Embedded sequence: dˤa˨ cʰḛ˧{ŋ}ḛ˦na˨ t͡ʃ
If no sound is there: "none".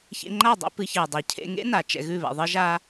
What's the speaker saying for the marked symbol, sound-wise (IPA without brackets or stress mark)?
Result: ŋ